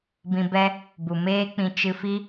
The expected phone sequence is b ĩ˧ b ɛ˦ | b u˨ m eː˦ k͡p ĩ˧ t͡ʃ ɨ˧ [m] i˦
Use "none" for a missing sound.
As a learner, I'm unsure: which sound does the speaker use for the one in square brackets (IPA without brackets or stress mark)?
f